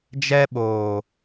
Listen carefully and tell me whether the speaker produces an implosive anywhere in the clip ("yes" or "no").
yes